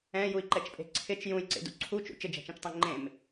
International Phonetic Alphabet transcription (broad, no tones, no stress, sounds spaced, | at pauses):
ɛ̃ j u i̯ ǃ ɛ t͡ʃ pʼ e̤ ǀʰ ɪ t͡ʃ j ũ j ǀ ḛ d ṵ ǀʰ u t͡ʃ ṵ t͡ʃ ɪ d͡ʒ ɛ̤ t͡ʃ ẽ t͡ʃ tˤ ẽ ŋ͡ǃ ẽ m